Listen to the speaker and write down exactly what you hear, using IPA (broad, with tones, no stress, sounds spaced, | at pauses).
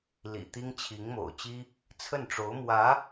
l ḭ˨˩ t̪ i˥ ŋ t͡ɕʰ i˧˥ ŋ m o̰˨˩ ʊ̯ t͡ɕ i˥ | t͡sʰ ə˥˩ n ʈ͡ʂ o˧˥ ʊ̯ m w ä˧˥